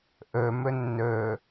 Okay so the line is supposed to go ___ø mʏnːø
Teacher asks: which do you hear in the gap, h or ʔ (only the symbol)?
ʔ